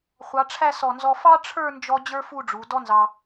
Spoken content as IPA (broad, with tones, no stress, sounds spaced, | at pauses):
χʷ ɑ˩˧ ʈ͡ʂʰ æ˥˧ s ɔ˧˩ n z ɔ˧ f ɑ˥ ʈ͡ʂʰ ə˞˥˧ n d͡ʒ ɔ˧ d͡ʑ ə˞˥ f u˥˧ ɖ͡ʐ u˩˧ d ɔ˥ n z ɑ˧